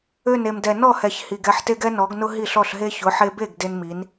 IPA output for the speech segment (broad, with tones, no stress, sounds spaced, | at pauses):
ø˥˩ n e˩ m d ɛ˩ n ɔ˥˩ h ɛ˩ ç h i˩ ɡ ɛ˥˩ ħ t e˥ ɡ ɛ˥ n ɔ˩˥ ɡ n ʊ˥ ɦ i˥˩ ɬ ɔ˥˩ ɬ ɦ e˥ ç ʊ˩˥ ħ e˧ b e˥˩ ɡ d e˥ n m i˩˥ n